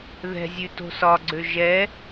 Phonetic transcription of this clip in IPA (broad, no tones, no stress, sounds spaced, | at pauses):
ð ɛ̤ zʲ ʉ t o̤ s ɒ ɡ͡ǀ ø ʒ ɛ